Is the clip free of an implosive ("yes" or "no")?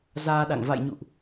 no